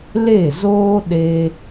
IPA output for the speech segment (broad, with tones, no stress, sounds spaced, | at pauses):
l e˦˨ z oː˦ ɗ e˦